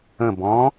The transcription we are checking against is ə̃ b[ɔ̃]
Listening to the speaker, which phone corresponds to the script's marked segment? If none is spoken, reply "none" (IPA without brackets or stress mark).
ɔ̃